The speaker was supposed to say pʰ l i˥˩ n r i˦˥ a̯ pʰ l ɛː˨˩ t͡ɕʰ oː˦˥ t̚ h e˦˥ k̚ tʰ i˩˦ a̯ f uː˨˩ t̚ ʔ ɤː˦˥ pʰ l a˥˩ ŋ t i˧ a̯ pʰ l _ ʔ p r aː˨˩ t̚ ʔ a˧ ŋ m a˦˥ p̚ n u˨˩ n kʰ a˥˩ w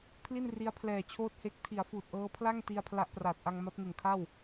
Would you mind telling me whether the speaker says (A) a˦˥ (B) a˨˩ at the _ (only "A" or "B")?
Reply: A